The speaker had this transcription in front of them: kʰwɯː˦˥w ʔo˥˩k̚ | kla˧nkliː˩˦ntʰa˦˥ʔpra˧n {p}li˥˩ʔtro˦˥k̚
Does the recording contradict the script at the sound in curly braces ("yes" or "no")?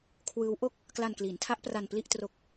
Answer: no